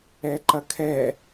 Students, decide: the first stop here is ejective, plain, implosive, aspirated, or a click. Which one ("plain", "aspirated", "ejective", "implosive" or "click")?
click